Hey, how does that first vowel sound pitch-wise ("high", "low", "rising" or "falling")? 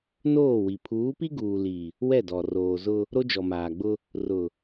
falling